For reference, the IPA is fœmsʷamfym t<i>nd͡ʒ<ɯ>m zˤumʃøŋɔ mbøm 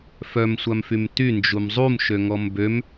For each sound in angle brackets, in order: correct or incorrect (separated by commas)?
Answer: incorrect, incorrect